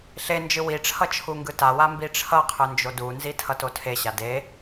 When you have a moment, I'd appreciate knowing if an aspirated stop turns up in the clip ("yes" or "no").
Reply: yes